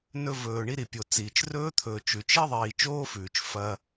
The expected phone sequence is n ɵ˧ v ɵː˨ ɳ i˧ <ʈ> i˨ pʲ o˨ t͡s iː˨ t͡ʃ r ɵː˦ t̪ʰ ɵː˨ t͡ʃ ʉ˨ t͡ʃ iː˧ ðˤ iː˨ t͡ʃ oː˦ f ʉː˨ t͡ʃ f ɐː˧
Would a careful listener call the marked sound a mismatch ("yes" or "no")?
yes